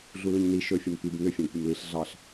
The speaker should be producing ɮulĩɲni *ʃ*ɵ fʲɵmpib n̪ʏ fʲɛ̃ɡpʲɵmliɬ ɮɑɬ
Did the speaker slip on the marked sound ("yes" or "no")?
no